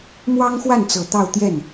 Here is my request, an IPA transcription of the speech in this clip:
m w ɑ˥ ŋ x w a˥˩ n t͡s ɤ˨˩ t̪ ɑ˥˧ ʊ̯ t̪ j ɛ˥˩ n

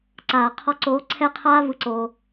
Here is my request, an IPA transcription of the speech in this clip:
ǀ aː˨ qʰ ɔ˧ ǀ oː˨˦ ǀʰ ɛ˦ qʰ aː˦ v ɯ˧ ǀ oː˧

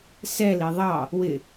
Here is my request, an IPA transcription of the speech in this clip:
s ɛ l i ðˤ ɑ | w ɪ

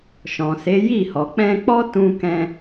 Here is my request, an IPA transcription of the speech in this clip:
ʃ ɔ̃˨ s e˨˦ j i˦˨ h ɔ˨ k͡p ɛ̃˧ k͡p ɔ˦ t ũ˧ k ɛ̃˧

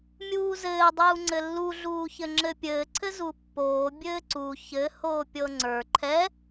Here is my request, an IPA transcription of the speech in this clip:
mʲ uː z ɘː dˤ uː ŋ͡ǀ ɘ lː u ɮ uː ç ɘ ŋ͡ǁ ɘ pʲ ɘː ǀʰ ɘ z u pː oː bʲ ɘː ǀ u ç ɘ h oː pʲ ɤ ŋ͡ǀ ə˞ ǃʰ ɛ

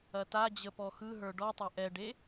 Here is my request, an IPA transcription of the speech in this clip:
ɐ t a d͡ʑ ə p ɔ x ɯ ɦ ə˞ ɖ ɔ tˤ ɐ ʔ ɛ ɖ e

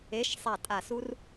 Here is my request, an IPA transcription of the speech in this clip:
e˨˦ ʃ sˤ a˧˩ tʼ a˧˩ s u˦˥ r

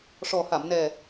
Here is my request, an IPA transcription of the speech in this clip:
ʂ ɔ˨˩ h a˨˩˨ m n ɛ˨˩

